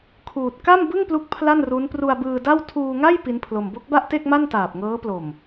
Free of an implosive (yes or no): yes